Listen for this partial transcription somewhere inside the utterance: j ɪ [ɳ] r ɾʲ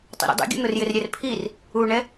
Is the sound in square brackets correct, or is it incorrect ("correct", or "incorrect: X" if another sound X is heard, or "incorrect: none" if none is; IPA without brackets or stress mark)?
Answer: incorrect: none